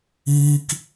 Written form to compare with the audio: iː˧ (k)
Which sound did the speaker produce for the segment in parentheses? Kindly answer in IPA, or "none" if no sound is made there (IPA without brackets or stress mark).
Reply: k